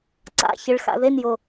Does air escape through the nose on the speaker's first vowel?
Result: no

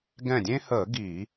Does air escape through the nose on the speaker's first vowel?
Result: yes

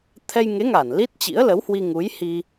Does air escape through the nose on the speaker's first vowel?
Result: no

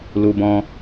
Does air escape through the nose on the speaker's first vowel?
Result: no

